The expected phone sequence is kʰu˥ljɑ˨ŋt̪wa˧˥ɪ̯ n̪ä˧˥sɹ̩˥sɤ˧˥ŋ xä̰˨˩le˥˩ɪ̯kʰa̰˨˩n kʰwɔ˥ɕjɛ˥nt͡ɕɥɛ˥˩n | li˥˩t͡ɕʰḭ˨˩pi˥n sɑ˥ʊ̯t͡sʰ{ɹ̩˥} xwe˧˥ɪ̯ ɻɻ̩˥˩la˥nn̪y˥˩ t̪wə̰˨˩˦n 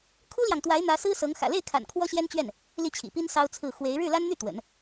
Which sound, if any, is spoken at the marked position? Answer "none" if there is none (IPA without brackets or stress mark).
ɹ̩˥˩